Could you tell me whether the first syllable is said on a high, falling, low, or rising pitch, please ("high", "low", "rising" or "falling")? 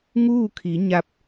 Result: falling